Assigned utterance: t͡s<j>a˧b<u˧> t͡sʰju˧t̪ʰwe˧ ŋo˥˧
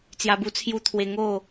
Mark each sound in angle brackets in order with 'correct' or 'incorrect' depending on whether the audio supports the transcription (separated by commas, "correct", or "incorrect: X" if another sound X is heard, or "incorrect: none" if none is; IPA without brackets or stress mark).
correct, correct